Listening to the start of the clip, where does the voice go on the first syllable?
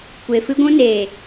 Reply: low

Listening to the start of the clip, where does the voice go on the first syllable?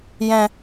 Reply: low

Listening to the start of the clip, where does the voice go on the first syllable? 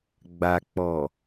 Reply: low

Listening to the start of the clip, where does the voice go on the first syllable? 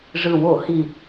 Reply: low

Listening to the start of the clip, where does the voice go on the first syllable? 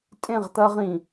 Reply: falling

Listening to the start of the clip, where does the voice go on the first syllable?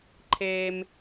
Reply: low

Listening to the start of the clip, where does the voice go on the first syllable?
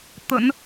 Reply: low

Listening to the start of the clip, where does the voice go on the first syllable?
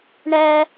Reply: high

